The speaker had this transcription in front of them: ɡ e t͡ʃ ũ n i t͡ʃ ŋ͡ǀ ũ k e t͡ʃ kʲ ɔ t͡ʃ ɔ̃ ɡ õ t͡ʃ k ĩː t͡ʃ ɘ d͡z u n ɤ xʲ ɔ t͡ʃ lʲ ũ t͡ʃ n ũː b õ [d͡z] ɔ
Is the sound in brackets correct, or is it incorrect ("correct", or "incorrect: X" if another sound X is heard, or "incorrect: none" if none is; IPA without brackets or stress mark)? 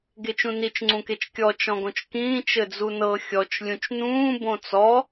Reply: incorrect: t͡s